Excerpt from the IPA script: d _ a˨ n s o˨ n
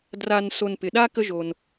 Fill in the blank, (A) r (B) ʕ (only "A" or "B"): A